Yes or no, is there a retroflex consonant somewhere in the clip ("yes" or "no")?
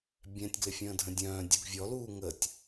no